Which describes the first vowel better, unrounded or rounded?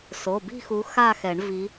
rounded